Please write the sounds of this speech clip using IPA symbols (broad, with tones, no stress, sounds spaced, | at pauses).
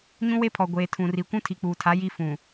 ɲ ũ˦ w e˦ pʰ ɔ˨ ɡʷ eː˨ tʰ ũ˨ r i˨ kʷ ũ˦ tʰ i˨ k͡p uː˨ tʰ a˨˦ j i˦ f ũ˨